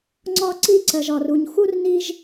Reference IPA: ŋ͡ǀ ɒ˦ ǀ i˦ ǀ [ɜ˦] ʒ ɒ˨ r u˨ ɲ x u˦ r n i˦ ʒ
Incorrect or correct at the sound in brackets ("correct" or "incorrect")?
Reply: incorrect